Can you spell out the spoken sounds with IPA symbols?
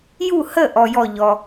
j u˥˩ h ə˥˩ ʔ ɔ˨ j ɔ˥˩ ʎ ɔ˨

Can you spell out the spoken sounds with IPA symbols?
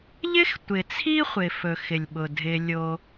ʎ ɪ˦ x tʷ ɪ˨ t͡sʰ i˦ χʷ ɪ˨ f ɵ˨ x ɪ˨ lʲ ɓ ʊ˨ dʱ ɪ˦ lʲ o˦

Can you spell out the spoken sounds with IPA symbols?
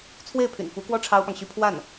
t͡sʰ w e˥˩ ɪ̯ pʰ y̰˨˩ n f u˧˥ k w ɔ˥ ʈ͡ʂʰ ɑ˥ ʊ̯ p ɑ˨ ŋ ɕ y˥ pʰ w a˥˩ n

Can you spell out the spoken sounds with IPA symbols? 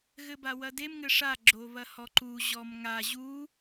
ɣ ɘ b a w ɐ d e m ŋ ɘ ʂ a ɡ͡ǁ o β ɐ h ɔ ǃ u ʑ ɔ m ŋ a ʑ u

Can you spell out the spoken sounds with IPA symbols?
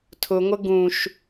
tʰ ʊ ŋʷ ə ɡ ũ ʃ

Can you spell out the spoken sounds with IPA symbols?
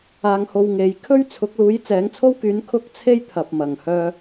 aː˧ ŋ h o˧ w ŋ e˨˧ j kʰ ɵ˥ ɥ t͡sʰ ʊ˨˥ k̚ l uː˨˥ j t͡s ɛː˨˥ ŋ t͡sʰ o˥ w k yː˨˥ n kʰ ʊ˥ k̚ t͡sʰ e˥ j t̪ʰ ɐ˨ p̚ m ɐ˨˩ ŋ h œː˧

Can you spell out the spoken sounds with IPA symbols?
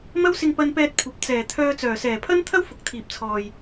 m ɐ˥ w s ɪ˧ ŋ p ɐ˧ n p ɛː˧ t̚ kʷʰ ɐ˨ p̚ t͡s ɛː˨˩ t̪ʰ œː˧ t͡s œː˨˩ s ɛː˨˩ pʰ ɐ˥ n t̪ʰ ɐ˥ w f ʊ˨˥ k̚ t̪ʰ iː˨ p̚ t͡sʰ ɔː˨ j

